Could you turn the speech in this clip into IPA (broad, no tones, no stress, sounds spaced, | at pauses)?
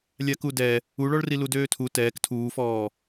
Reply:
lʲ a k u d ɛ | u ɭ ɔ ɭ r i l u d øː tʰ u t ɛː k tʰ uː f ɔː